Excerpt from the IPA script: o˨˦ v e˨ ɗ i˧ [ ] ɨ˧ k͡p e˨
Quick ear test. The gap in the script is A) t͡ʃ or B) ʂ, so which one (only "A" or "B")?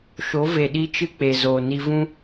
A